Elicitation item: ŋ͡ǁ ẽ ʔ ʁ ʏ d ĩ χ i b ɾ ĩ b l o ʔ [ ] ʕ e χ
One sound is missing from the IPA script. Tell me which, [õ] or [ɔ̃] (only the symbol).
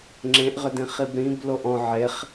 ɔ̃